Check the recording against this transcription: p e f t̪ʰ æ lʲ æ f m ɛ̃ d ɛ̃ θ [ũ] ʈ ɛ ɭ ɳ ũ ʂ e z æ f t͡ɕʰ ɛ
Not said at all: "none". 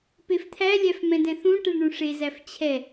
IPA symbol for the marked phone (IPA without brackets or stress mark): ũ